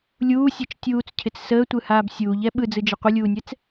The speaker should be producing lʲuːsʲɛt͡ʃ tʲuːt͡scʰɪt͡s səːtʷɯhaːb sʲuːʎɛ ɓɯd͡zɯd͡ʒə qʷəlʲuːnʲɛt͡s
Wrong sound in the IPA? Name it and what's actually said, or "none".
none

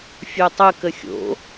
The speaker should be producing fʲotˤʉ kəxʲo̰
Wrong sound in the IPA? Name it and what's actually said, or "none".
ʉ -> ə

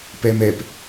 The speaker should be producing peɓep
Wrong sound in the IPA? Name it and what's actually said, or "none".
ɓ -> m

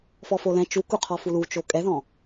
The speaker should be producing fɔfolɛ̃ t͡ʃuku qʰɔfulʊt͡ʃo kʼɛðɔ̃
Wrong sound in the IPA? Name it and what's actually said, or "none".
ʊ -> u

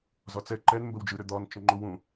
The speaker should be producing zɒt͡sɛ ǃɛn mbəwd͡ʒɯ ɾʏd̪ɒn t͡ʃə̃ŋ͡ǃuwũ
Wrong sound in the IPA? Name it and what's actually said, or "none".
none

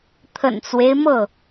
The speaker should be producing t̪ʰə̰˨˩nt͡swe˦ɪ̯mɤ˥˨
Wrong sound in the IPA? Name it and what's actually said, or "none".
none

